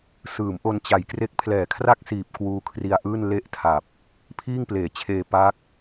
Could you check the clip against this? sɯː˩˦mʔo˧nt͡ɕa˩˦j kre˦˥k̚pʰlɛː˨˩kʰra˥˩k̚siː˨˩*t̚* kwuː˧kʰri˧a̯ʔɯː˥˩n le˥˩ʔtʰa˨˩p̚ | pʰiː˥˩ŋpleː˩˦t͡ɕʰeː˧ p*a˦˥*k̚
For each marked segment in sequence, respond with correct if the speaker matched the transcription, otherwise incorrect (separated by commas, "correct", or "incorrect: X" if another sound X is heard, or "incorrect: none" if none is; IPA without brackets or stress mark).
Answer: incorrect: p̚, correct